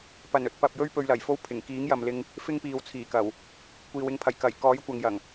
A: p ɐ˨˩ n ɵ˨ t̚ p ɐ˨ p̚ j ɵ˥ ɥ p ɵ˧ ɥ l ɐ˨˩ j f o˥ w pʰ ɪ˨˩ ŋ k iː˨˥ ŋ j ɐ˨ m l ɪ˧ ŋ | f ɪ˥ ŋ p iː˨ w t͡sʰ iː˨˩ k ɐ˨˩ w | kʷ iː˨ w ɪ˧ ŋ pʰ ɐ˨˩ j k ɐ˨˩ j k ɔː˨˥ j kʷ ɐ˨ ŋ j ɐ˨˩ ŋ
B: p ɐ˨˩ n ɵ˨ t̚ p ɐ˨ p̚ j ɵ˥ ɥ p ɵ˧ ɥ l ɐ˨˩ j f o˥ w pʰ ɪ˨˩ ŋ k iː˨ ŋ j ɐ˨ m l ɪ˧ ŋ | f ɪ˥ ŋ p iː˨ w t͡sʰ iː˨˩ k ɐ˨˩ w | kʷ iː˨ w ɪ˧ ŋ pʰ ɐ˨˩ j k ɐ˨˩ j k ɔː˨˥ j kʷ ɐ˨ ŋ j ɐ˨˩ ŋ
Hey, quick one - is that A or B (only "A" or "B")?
A